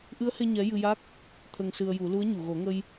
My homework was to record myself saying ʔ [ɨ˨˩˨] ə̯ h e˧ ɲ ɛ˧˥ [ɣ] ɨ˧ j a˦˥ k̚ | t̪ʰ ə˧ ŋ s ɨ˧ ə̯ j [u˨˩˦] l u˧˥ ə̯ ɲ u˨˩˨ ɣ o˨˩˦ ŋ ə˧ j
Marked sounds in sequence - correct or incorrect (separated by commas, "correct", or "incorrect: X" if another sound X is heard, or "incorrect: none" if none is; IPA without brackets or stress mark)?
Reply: incorrect: ɨ˧˥, incorrect: j, correct